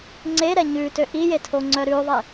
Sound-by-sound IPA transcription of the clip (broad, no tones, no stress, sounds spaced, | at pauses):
ŋ͡ǀ e ɾ ɛ ɲ ʉ t ø ʔ i j e tʰ o ŋ͡ǀ œ ɾ ʉ ðˤ e